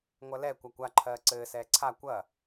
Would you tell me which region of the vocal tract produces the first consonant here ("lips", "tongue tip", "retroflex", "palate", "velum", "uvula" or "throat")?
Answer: velum